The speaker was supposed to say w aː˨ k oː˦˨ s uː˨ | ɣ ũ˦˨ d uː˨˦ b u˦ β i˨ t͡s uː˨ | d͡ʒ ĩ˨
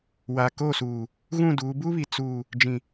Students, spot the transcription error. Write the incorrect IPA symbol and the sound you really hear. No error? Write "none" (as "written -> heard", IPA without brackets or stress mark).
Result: none